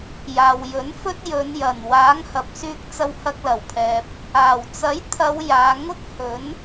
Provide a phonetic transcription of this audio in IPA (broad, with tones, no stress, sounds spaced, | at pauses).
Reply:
j aː˨ w j ɵ˨˥ n f ɵ˥ t̚ j ɵ˨˧ n j ɐ˨˩ n w aː˨˥ ŋ h ɐ˨ p̚ s yː˧ k̚ t͡s ɐ˧ w h ɐ˧ k̚ l ɐ˨˩ w pʰ ɛː˨ p̚ | aː˨˩ w t͡s ɐ˨˥ j t̪ʰ ɐ˨˧ w j aː˨˧ ŋ ʊ˥ k̚ h ɵ˨˥ n